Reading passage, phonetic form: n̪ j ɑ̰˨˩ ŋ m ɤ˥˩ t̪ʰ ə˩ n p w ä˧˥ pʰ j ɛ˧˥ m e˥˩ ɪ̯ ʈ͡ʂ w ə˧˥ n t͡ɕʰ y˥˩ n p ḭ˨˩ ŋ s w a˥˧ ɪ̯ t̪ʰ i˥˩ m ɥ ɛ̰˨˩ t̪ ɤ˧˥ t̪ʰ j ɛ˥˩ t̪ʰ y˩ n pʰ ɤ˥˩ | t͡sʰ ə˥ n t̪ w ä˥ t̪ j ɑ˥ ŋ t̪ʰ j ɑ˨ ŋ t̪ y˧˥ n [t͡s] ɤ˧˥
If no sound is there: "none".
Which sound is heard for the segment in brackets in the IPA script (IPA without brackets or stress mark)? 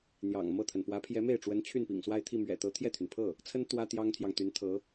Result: t̪ʰ